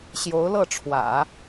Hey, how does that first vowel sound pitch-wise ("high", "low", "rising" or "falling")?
rising